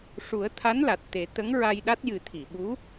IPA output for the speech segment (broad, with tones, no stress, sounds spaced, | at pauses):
ʂ u˨˩˦ ə̯ t̪ʰ a˧˥ n l a˨˩ t̚ t̪ e˨˩˦ t̪ ə˧˥ ŋ ɹ a˧ j ɗ a˦˥ t̚ j ɨ˨˩˦ t̪ʰ i˨˩˨ ɓ u˧˥